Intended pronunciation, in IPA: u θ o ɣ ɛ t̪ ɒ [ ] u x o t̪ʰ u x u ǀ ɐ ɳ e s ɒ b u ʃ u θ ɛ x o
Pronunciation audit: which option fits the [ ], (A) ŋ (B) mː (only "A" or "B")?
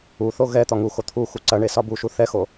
A